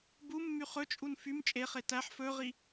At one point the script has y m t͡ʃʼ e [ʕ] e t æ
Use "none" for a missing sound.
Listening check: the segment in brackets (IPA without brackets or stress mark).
χ